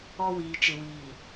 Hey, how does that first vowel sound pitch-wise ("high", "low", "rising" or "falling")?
high